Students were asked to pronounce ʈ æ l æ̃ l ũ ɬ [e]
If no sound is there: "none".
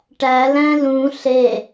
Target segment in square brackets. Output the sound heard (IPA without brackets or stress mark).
e